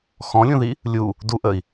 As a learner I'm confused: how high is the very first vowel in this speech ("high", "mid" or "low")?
mid